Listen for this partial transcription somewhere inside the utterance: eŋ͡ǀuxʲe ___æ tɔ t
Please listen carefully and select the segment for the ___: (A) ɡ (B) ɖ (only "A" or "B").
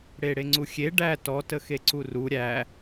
B